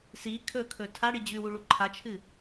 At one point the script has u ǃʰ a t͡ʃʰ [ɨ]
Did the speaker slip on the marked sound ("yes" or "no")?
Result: no